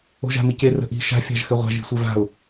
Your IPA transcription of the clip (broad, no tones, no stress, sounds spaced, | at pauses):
o̤ ʒ a̤ m i c e r ə̤ ʔ i̤ ʃ a̤ fʲ a̤ ʒ x ɘ ʁʷ a̤ ʒ i̤ sʷ e v a̤ ʊ̯